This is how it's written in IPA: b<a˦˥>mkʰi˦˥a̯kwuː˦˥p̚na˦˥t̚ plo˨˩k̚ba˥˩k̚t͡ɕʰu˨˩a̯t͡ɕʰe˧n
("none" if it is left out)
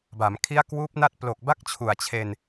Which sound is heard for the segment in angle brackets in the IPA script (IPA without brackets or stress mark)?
a˩˦